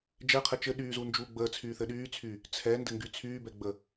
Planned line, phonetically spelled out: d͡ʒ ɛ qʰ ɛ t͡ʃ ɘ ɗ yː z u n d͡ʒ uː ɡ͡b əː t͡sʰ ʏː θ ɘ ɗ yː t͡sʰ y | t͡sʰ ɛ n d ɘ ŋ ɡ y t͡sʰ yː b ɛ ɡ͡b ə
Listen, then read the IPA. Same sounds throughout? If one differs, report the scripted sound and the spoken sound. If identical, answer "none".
ʏː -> yː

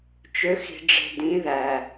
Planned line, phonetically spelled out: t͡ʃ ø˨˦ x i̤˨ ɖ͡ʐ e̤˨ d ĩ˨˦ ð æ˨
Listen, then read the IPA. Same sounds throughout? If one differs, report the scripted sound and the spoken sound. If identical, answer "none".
none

